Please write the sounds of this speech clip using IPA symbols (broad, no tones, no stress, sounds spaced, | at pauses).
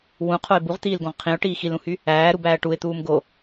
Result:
w ũ qʰ o ɪ̯ b u ʁ t̪ iː l ɡ õ ʁ qʰ ĩ ʊ̯ ʈ iː x i l ũ h y | æː ɾ u b æː ʈ u ɪ̯ t̪ uː m ɡ o